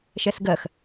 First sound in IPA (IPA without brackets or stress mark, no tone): ʃ